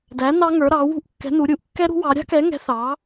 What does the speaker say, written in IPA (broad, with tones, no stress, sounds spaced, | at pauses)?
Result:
d æ˨˥ n ɑ˦˥ ŋ ə˞˨˥ ɾ ɑ˨˥ w ṳ˦˥ ʔ kː ɛ̤˨˥ n u˨˥ ɾʲ u˨˥ ʔ kː ɛ˦˥ ɾ ṳ˦˥ w ɑ˨˥ ɾʲ ɑ̤˦˥ k ɛ˨˥ ŋ ɛ̤˨˥ θ ɑ˨˥